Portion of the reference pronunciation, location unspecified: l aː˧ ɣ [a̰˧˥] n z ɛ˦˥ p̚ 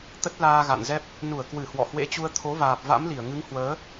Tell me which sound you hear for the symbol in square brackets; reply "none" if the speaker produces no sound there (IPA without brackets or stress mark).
a̰˧˨